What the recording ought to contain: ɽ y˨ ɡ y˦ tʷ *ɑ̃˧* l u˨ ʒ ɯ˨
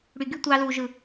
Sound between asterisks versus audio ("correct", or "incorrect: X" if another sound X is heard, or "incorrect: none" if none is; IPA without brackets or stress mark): incorrect: ɑ˧